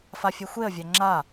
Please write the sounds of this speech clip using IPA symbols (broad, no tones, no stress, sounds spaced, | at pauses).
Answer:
f a fʲ ɛ xʷ e ə̯ vʲ a ŋ͡ǁ a